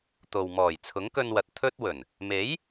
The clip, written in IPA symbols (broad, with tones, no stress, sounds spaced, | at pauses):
t̪ o˨ w m ɔː˨˩ j t͡sʰ ʊ˨˥ ŋ k ɵ˧ n w ɐ˨ t̚ t̪ʰ ɵ˥ t̚ w ɵ˨˩ n | m e˨˥ j